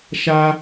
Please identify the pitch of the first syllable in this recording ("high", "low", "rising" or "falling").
high